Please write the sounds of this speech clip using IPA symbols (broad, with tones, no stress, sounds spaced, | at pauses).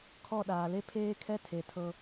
kʰ ɔ˦˨ ɗ aː˨ l e˦ pʰ eː˦ kʰ ɛ˦ tʰ e˨ tʰ ɤ˧